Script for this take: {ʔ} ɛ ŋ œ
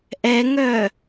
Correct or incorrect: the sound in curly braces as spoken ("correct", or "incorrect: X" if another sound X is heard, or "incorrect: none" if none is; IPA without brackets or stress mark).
correct